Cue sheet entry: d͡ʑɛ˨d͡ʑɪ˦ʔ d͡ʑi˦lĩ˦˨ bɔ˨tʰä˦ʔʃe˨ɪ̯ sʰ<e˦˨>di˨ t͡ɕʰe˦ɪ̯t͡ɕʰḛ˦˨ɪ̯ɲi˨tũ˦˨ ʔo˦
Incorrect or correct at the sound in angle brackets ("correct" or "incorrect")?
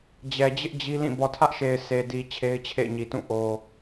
incorrect